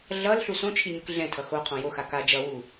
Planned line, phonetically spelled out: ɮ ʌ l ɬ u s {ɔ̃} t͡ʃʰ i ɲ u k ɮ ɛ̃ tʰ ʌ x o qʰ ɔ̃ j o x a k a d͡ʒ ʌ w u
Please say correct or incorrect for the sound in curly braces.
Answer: incorrect